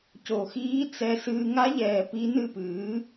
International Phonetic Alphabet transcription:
c o˨˩ x iː˦˥ t͡s ɛ˧ s ɨː˧ ŋ a˦˥ ʎ ɛː˨˩ p i˦˥ n ɨ˥˧ p ɨː˩˥

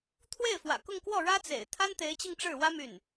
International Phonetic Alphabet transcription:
t̪ʰ w e˥˩ ɪ̯ f w ä̰˨˩ k ʊ˥˧ ŋ k w ɔ˥˩ ɻ ä˥ t͡s ḛ˨˩ ɪ̯ t̪ʰ a˥ n t̪ e˧˥ ɪ̯ t͡ɕ i˧ ŋ ʈ͡ʂ ɻ̩˥˩ w ä˥ m y˥˩ n

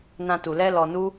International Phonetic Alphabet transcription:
n ã˧ t u˨ l ɛ˧ l ɔ˨ n u˧

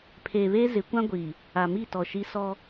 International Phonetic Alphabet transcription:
pʰ eː˨ β eː˦ z ɪ˨˦ kʷ ã˦ ɡʷ iː˨ | a˨ m i˦˨ t ɔ˨ ʃ i˦ s ɔ˦

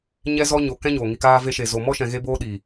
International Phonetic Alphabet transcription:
ɲ ɛ˦ z ɔ˦ ɲ o˧ k ɛ̃˦ ɲ oː˨ ŋ i˨ k aː˧ v e˧ ʃ e˨ z o˨ m ɔ˦ ʃ ɛ̃˧ ɣ e˦ b oː˦ ɗ i˨

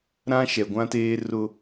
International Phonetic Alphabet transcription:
ɾ ã˦ ʃ ɛ˨ ɡʷ ã˦ t eː˦ r ʊ˦

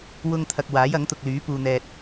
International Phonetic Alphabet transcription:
w ʊ˥ ŋ t̪ʰ ɐ˧ k̚ w aː˨˥ j ɐ˨˥ ŋ t̪ ʊ˨ k̚ l yː˨˥ p uː˨ n̪ ɛː˨ t̚

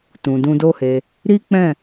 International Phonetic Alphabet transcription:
t ũ˨ d ũ˧ d o˦ h e˧ | ɾ i˦ k͡p ɛ̃˦˨

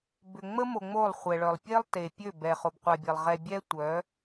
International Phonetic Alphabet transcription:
b ʏ˨ ŋ͡m ə˦ m o˨ ŋ͡m o˦˨ lˠ χʷ ɛ˨ ɭ œ˨ lˠ pʲ e˦ lˠ t e˨ pʲ ø˦˨ b ɛ˨ χ o˨ b qʷ a˨ bʲ e˨ lˠ ʁ ɛ˨ bʲ ɛ˦ tʷ œ˨˦

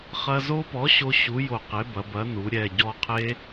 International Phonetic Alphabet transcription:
χ ɐ˧ z o˦˥ p ɔ˨˥ ɕ o˦˥ ɕ u˨˥ j o˧˩ q e˨˥ b ɐ˩˧ b ɐ˨˥ n u˩˧ ɾʲ ɛ˧˩ ɟ ɔ˧ qʰ e˦˥

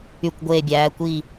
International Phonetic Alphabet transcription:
y˧˩ kʷ ɡʷ eː˧˩ bʲ æː˩˧ kʷ i˧˩

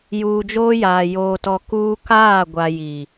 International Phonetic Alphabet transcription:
j uː˨ d͡ʒ oː˦ j aː˨ j oː˨ t ɔ˨ k uː˦ k aː˦˨ ɡʷ a˨ j i˨

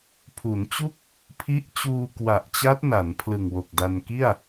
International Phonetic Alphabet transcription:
pʰ u˩˦ n t͡ɕ u˥˩ k̚ | pʰ i˦˥ ʔ t͡ɕ uː˧ k w a˨˩ ʔ t͡ɕ a˦˥ t̚ n a˩˦ n pʰ l ɯ˨˩ ŋ w o˨˩ k̚ d a˧ n k i˥˩ a̯

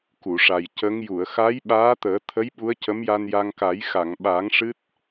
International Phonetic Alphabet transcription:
k u˨˩˨ ʂ a˨˩ j c ə˧˥ ŋ j u˨˩˨ ə̯ x a˧˥ j ɓ aː˧˥ t̪ əː˨˩˦ t̪ʰ ə˧˥ j ɓ u˧˥ ə̯ c ə˧˥ m j a˧ n j a˧ ŋ k a˨˩˦ j x a˨˩˨ ŋ ɓ a˨˩˦ ŋ ʂ ɨ˦˥ t̚

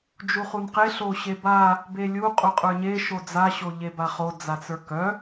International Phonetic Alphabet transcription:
d͡ʒ u χ u n q e ɬ o ɕ e b a | b e lʲ u qʼ u qʼ ə˞ ɲ e ʃ o d͡z a ɕ o ʎ e b a χ o d͡z a t͡s ə˞ k œ

